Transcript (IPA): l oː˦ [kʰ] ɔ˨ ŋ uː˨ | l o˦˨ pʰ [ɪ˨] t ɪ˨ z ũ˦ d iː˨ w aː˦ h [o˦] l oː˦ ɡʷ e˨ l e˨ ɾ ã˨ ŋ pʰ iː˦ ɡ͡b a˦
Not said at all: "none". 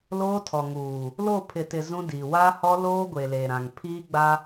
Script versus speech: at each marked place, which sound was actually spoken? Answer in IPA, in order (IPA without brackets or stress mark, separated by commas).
tʰ, ɪ˨, ɔ˦